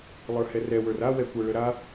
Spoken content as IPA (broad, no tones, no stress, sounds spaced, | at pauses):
lˠ ə˞ h ɛ r ɛ w ə˞ r a w ɛ kʷ ə˞ ɭ ə ɾ a